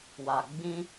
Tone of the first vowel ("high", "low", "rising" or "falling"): low